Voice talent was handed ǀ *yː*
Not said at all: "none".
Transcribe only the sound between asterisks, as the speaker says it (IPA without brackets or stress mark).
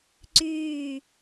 yː